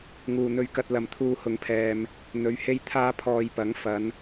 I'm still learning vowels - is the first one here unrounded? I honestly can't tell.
no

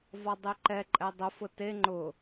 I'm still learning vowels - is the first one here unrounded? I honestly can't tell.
no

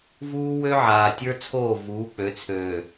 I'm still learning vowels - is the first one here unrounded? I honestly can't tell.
no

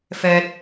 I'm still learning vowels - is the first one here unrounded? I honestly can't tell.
yes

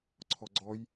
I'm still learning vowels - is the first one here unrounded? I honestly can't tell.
no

